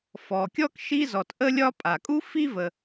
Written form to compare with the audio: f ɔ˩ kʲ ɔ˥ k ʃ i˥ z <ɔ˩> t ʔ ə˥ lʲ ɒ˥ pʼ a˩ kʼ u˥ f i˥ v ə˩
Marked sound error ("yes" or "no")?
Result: no